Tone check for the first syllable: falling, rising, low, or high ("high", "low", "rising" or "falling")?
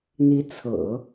rising